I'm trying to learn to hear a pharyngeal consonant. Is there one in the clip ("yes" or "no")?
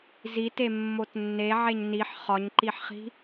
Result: yes